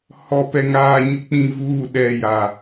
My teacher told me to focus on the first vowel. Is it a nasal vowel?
no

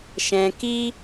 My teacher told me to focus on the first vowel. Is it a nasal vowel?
yes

